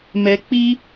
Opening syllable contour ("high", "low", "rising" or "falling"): low